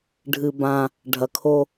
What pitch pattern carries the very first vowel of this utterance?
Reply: low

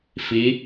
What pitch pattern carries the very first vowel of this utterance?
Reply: rising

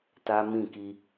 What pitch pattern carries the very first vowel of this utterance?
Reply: high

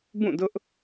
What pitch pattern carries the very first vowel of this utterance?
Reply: falling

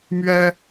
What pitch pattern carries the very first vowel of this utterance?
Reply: high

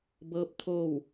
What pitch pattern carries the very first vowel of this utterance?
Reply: rising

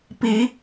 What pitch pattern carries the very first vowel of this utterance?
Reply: rising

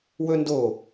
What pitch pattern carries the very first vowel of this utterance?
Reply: high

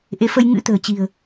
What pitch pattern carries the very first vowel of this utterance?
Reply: rising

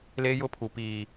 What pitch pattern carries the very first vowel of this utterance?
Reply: high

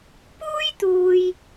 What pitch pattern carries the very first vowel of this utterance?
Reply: high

